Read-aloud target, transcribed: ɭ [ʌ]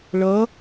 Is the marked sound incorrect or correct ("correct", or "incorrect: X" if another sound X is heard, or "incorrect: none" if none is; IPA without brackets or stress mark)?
correct